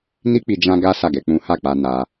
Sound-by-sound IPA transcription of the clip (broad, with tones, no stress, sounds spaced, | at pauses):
n i˦ k͡p i˧ d͡ʒ ã˦ ɡ a˦ s a˦˨ ɡ ɛ˧ k͡p ũ˦ h a˦˨ k͡p a˧ n a˧